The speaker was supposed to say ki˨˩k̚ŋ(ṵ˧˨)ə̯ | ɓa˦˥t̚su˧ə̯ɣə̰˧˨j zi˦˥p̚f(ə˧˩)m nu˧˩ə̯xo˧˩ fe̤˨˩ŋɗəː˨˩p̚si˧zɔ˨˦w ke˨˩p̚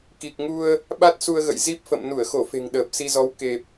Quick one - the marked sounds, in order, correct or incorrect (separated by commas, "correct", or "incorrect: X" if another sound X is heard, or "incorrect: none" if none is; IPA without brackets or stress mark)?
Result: incorrect: u˧, incorrect: ə̰˧˨